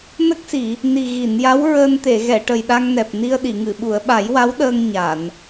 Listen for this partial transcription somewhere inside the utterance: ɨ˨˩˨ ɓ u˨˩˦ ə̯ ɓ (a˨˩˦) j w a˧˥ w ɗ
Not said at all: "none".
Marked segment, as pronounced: a˨˩˦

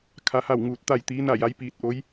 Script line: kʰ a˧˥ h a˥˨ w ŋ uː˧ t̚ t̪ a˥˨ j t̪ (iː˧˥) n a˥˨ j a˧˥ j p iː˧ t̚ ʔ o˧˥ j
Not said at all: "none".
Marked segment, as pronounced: iː˧˥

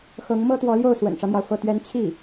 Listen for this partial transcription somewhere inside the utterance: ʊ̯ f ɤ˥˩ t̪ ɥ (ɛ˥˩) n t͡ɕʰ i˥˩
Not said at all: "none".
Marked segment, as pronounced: ɛ˥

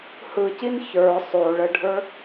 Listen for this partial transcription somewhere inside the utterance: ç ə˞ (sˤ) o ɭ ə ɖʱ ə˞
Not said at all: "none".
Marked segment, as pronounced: sˤ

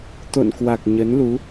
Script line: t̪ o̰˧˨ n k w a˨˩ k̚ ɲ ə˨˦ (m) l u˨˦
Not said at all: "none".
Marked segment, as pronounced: n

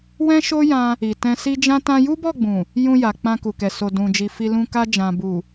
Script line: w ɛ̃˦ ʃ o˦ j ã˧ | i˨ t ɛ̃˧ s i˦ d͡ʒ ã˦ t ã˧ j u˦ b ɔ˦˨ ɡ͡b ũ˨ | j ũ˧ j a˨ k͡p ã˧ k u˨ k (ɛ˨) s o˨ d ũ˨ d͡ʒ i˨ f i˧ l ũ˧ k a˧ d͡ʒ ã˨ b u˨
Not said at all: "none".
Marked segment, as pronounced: ɛ˨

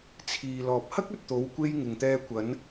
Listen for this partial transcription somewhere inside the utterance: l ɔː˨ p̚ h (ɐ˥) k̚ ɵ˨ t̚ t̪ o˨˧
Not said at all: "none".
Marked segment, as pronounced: ɐ˥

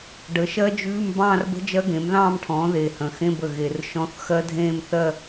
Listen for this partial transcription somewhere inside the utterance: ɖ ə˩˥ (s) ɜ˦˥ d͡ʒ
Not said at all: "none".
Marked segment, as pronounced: ʃ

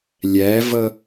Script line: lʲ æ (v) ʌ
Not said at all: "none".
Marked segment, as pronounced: v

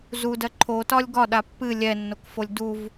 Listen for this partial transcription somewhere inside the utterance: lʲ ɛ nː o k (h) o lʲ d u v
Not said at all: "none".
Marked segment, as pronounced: f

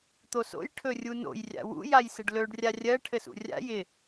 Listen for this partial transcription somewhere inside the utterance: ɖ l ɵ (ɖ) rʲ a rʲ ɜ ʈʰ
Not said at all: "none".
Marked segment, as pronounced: ɖ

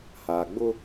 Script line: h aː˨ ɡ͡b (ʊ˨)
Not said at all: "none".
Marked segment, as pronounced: ʊ˦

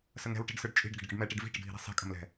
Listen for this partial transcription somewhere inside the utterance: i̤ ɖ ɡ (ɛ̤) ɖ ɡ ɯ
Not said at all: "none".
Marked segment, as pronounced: ə̤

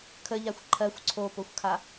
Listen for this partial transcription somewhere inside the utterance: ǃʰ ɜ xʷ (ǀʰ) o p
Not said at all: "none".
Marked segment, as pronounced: ǀʰ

